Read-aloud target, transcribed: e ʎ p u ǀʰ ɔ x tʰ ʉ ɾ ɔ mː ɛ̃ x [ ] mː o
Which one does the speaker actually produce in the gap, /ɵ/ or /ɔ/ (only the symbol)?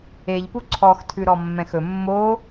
ɵ